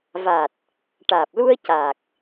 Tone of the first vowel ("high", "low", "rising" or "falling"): low